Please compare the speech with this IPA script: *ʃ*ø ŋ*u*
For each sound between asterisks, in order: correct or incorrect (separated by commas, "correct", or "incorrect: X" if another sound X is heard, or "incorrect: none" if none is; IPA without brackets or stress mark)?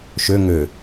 correct, incorrect: ø